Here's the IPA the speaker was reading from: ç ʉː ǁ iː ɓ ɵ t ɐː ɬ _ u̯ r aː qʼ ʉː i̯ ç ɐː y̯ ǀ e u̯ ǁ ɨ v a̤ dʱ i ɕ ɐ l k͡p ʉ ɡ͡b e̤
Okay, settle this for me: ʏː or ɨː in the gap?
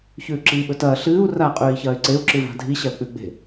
ɨː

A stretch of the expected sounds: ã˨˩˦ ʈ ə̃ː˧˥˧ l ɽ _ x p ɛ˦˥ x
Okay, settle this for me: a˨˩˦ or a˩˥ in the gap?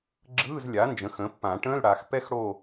a˨˩˦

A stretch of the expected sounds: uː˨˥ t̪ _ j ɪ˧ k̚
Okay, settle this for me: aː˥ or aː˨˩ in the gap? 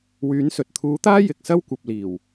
aː˥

